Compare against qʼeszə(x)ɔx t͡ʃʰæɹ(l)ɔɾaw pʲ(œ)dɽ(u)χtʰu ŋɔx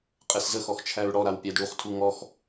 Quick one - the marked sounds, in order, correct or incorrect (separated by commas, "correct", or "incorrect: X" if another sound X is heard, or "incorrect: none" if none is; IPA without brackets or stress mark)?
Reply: correct, incorrect: ɽ, incorrect: æ, correct